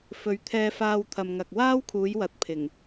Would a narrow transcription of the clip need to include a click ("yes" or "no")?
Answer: no